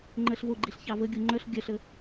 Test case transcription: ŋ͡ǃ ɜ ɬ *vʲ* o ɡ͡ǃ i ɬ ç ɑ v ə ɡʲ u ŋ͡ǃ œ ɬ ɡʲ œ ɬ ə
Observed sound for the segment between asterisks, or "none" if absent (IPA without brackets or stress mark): v